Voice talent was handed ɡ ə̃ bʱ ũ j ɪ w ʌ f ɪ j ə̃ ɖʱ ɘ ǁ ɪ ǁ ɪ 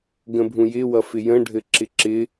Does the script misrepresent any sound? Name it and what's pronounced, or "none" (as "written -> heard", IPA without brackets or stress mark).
none